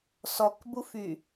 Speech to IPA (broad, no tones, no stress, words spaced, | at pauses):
sɔkbufy